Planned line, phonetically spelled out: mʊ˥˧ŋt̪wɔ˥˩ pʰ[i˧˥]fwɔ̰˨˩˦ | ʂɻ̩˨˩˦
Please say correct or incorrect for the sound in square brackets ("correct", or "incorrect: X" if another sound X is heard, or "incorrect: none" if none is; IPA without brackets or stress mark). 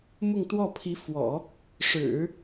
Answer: correct